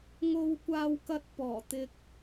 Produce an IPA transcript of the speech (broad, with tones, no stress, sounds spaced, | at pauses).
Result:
ŋ o˧ w kʷ aː˧ w k ɐ˧ t̚ p ɔː˨˩ t̪ ɪ˧ k̚